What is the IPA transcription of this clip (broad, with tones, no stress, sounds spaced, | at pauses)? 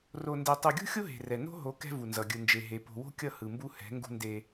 r o˨ n d e˨ tˤ u˨ ɡʲ ṳ˦ xʲ o˦ ɦ e̤˨ r ɛ˨ n o̤˦ ɦ o˨˦ k ɛ̤˦ v u˨ n z ʌ˨ ɡʲ ɯ˨ n d͡ʒ e˨ ɦ e˨ p o̤˨ w o̤˦ kʲ ʌ˦˨ h ɯ˨ m b u˦ h ɛ̤˨˦ ŋ ɡ ṳ˦ n d e˦